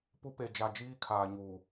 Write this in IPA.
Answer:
p u˦ p e˨ d͡ʒ a˨ d͡ʒ iː˦ kʰ aː˨ ɲ uː˨

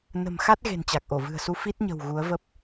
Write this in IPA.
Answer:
n ə̤˨˩ m x a˦˥ t̚ ɣ e̤˨˩ n t͡ɕ a˨˩ k̚ ʔ o˧˩ v ɨ̤˨˩ ə̯ s u˧ f i˦˥ t̚ ɲ ə̤˨˩ w ɣ u˨˦ ə̯ v ə˦˥ p̚

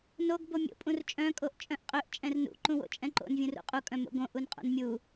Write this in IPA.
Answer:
n o ɡ b o mʲ o̰ pʼ ũ r t͡ʃʼ œ̃ kʼ o ʔ t͡ʃʼ œ̃ ʔ qʼ ø ʔ t͡ʃʼ ɛ̃ r n ṵ ǃ ũ w o̰ t͡ʃʼ ɛ̃ ǃ o̰ n vʲ ũ r ṵ qʼ u kʼ œ̃ m o̰ ɡ õ ʔ u n qʼ o̰ n mʲ u

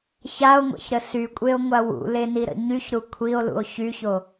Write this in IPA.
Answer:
ç a o̯ ŋʷ ɛ̰ ç ɾ ə s y kʷʼ e o̯ ŋʷ a w ṵ l e n i ɾ ə̰ ɲ y ç ɾ u kʷʰ i o̯ l ṵ o̯ ç y ç o

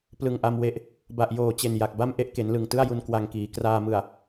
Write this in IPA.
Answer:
p l ɯ˨˩ ŋ ʔ a˧ m w e˨˩ ʔ | b a˨˩ ʔ j oː˨˩ t͡ɕ e˨˩ n j a˨˩ k̚ b a˥˩ m ʔ e˥˩ ʔ k e˩˦ n l ɯ˨˩ ŋ t ɯ˥˩ a̯ j u˧ n k w a˧ ŋ k iː˩˦ k r aː˧ m ɯ˨˩ a̯

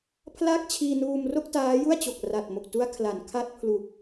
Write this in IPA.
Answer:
pʰ l a˥˩ k̚ t͡ɕʰ iː˧ n uː˧ m r o˥˩ k̚ t aː˦˥ j u˥˩ a̯ t͡ɕ o˨˩ k̚ r a˨˩ t̚ m o˨˩ k̚ t u˦˥ a̯ kʰ l a˩˦ n kʰ a˦˥ t̚ pʰ l u˨˩ k̚

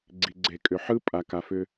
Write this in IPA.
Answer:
ɡ͡ǀ i˨ ɡ͡ǀ e˨ kʼ ʏ˨ ħ ɯ˦ pʼ a˨ k a˨ f ʏ˧

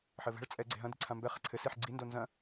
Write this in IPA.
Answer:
ħ ɘ v ɛ̤ ɭ t͡sʼ ɛ ɡ͡ǀ e̤ ɦ ɐ̃ d i̤ ǀʰ ã m b ɛ χ ɛ̤ ǀʰ ɘ s i ħ ɡ͡ǀ i n d o n z ɐ̃

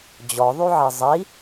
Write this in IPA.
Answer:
d͡ʑ ɔ ðˤ y ʕ i zˤ i

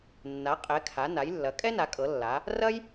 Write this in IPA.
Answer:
nː a˩˧ qʼ ɛ˩˧ kʰ a˩˧ n a˩˧ j lː ɐ˩˧ kʼ ɛ˥ n a˩˧ kʼ ɤ˩˧ lː a˩˧ | r ɐ˥ j

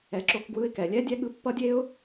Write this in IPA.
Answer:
ɛ˨ ǁ o˧ k ɡ w ɯ˧ ɪ̯ k ɛ˨ lʲ ɛ˦ dʲ ɛ˦ ɠ ɯ˧ pː ʌ˦ dʲ e˦ ʊ̯

